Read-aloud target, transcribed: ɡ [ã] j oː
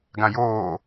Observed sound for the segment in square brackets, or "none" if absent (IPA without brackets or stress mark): ã